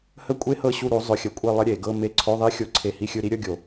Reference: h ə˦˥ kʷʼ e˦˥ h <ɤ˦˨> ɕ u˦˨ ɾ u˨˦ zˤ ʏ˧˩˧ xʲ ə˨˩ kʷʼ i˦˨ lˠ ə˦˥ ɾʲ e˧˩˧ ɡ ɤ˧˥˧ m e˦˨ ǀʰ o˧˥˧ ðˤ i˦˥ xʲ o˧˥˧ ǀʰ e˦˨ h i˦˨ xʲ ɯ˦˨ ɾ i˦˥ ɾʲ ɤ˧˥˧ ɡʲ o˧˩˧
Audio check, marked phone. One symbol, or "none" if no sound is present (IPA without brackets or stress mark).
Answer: ɤ˦˨